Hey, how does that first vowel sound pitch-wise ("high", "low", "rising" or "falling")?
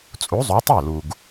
rising